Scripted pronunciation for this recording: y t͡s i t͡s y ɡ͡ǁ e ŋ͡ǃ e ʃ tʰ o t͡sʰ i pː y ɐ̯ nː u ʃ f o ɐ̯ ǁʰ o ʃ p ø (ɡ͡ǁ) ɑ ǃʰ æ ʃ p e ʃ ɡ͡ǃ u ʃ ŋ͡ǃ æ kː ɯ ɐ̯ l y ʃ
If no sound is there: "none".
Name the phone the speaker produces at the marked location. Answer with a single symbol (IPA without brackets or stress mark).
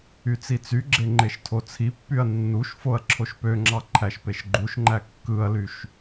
ŋ͡ǁ